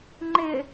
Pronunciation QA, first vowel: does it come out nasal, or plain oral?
oral